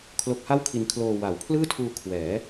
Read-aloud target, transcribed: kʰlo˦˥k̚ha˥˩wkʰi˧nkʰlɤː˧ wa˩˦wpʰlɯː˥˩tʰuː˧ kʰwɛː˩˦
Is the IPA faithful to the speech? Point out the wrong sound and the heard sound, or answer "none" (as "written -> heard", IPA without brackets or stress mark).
ɤː˧ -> oː˧